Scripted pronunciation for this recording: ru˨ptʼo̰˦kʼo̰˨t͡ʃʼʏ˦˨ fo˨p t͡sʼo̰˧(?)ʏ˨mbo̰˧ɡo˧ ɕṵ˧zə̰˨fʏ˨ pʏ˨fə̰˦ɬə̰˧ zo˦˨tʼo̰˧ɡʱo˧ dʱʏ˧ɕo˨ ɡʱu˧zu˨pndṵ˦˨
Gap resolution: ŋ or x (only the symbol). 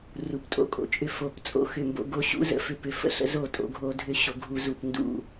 x